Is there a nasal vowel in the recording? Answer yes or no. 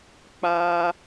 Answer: no